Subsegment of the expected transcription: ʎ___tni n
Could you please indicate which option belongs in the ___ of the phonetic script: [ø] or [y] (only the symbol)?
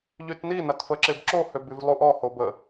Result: y